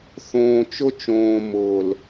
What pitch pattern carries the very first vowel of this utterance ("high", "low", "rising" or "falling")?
low